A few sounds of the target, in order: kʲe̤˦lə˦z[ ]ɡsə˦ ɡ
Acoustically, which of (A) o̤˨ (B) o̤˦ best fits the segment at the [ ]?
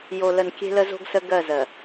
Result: B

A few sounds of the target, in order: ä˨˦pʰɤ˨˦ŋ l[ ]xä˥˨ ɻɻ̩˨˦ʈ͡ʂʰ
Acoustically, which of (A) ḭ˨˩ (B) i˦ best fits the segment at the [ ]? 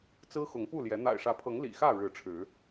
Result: A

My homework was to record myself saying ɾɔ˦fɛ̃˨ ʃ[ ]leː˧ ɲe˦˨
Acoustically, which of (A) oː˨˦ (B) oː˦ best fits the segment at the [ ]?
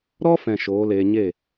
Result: A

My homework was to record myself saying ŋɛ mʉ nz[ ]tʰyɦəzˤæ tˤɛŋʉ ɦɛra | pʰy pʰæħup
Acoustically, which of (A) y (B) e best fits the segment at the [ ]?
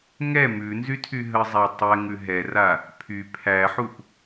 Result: A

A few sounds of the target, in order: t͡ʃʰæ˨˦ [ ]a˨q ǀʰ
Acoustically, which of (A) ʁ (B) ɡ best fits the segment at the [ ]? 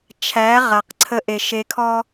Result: A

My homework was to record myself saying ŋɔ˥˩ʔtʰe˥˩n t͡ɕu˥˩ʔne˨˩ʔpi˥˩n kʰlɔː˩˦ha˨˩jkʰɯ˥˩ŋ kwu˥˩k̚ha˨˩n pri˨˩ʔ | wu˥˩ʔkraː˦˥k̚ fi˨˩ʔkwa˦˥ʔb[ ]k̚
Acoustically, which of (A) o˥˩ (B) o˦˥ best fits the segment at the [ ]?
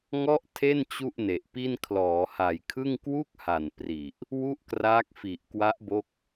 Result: B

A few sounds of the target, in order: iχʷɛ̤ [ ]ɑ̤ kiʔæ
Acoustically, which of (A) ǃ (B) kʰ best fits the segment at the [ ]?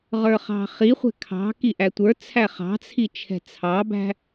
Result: B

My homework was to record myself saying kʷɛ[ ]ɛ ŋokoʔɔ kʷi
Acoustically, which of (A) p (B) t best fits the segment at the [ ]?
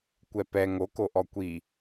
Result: A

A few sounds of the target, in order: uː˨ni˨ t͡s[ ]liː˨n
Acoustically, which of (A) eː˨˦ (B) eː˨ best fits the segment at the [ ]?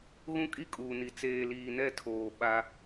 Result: B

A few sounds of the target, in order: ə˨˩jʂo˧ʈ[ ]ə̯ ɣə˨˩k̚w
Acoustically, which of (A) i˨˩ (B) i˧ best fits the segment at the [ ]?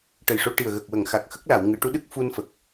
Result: A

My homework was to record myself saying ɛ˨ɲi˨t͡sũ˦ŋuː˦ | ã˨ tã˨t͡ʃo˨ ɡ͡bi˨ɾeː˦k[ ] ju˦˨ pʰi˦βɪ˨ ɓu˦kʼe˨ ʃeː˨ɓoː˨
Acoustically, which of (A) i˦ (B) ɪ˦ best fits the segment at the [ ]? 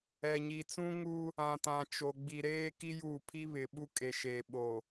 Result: A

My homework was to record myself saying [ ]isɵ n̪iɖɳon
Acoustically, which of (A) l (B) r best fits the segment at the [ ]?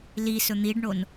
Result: A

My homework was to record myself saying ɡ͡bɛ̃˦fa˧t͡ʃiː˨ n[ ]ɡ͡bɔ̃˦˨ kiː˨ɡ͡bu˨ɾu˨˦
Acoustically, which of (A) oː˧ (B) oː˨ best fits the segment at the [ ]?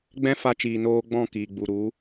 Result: A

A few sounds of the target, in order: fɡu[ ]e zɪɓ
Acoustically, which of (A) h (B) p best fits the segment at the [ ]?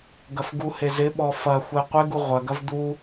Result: A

